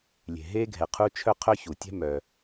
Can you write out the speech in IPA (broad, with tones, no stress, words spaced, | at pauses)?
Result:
lʲe̤˩ɦe˥ɡʱɛ˩ qʰu˥ t͡ʃʰœ˥qʰœ˥çu˩ tʲɛ̤˥mœ˩